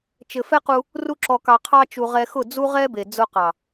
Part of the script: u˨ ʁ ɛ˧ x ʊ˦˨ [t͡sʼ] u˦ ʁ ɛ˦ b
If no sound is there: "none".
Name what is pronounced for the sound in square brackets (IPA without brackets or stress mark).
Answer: d͡z